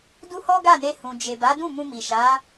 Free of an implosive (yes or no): yes